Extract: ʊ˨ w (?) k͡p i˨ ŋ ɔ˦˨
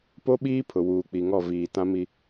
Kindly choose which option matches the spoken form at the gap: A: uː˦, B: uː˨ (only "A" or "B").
B